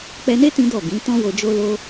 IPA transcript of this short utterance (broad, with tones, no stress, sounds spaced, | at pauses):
k͡p ɛ˧ n e˦ t ĩ˦ d ɔ˦˨ ɡ ĩ˨˦ t ɔ̃˦ w o˧ d͡ʒ o˦ l o˦